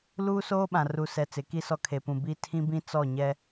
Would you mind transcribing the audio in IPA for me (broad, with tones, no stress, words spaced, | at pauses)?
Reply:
luː˦soː˦ɓã˨ ru˨sɛ˨ t͡sɪ˨˦ki˦sɔ˦ kʰe˨pũ˨ bi˦ tʰĩ˦bĩ˦ t͡sɔ˦˨ɲɛ˦